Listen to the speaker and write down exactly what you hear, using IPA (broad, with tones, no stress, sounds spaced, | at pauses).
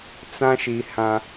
t͡s ã˦ ʃ i˨ h ã˦